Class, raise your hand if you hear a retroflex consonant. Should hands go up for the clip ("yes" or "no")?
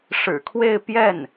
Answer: yes